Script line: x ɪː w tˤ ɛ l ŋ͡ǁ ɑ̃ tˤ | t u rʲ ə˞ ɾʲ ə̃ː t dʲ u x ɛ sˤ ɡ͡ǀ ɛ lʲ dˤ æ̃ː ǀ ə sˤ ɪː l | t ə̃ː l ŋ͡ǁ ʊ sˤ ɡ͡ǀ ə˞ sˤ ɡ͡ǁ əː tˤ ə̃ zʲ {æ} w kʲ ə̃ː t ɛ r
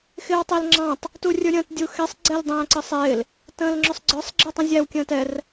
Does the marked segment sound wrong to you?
no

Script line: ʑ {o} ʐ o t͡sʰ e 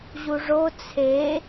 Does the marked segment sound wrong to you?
yes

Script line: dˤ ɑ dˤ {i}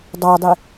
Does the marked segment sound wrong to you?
no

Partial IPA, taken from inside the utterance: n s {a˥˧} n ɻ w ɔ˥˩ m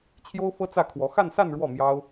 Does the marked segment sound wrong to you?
no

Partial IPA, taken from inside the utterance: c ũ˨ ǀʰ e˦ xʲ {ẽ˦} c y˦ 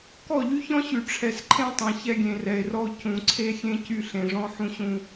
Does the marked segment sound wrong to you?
no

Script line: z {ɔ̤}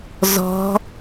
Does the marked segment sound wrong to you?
no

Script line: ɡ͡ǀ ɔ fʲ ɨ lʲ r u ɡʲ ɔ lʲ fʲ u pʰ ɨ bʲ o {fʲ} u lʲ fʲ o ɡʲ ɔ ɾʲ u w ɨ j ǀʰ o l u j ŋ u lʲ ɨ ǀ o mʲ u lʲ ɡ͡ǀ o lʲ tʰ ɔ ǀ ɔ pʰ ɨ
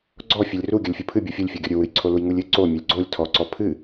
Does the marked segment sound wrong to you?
no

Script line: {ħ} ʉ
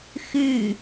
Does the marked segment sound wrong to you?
yes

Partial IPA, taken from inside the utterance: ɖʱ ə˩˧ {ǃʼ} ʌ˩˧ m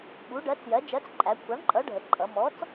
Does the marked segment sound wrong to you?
no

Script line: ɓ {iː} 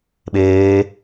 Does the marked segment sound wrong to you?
yes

